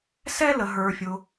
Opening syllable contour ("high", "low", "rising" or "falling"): high